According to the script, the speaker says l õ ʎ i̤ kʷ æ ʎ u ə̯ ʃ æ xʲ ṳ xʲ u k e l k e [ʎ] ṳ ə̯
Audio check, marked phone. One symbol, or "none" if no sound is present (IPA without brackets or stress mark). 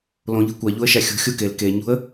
ɲ